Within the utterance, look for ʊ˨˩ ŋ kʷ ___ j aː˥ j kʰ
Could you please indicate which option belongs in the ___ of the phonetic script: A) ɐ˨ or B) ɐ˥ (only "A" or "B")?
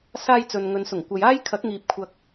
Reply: A